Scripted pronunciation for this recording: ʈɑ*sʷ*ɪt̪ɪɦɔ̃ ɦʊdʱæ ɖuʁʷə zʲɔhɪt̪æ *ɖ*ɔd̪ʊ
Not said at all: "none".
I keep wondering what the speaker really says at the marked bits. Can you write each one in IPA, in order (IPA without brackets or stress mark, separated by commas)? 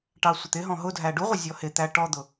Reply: sʷ, ʈ